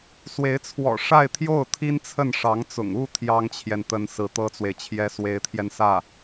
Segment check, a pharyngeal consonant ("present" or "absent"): absent